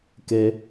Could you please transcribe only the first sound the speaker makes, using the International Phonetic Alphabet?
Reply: k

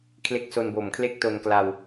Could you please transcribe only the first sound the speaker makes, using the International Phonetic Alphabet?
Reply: kʰ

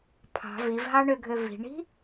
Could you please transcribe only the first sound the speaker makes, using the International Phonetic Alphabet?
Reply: pʰ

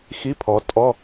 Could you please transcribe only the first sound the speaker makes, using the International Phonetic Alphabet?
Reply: x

